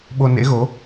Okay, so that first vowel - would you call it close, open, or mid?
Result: mid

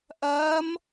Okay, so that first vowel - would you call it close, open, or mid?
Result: open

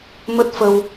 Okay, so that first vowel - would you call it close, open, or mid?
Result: mid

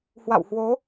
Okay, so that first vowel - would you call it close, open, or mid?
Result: open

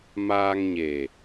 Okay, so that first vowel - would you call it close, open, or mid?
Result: open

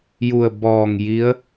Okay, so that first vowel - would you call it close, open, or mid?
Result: close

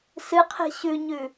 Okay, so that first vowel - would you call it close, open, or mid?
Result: close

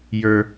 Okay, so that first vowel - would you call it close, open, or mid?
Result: mid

